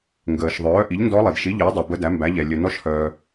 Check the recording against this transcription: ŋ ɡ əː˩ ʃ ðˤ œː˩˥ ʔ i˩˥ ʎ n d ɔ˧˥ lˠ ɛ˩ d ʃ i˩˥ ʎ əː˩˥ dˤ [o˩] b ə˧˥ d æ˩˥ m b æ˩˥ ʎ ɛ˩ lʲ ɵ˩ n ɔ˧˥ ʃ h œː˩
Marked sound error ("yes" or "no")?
yes